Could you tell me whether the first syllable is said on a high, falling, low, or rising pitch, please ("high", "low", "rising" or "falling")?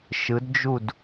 rising